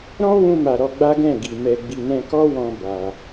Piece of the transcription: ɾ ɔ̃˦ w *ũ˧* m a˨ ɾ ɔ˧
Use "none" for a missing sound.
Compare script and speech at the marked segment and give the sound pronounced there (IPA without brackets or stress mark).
ũ˧